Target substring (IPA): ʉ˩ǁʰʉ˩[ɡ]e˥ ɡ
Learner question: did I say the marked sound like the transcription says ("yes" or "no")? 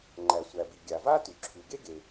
yes